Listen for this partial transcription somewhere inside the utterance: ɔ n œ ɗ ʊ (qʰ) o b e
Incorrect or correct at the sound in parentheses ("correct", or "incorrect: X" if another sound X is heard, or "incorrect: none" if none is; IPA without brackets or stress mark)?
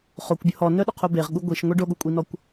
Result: correct